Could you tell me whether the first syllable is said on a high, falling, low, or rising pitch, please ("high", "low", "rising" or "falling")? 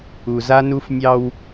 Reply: low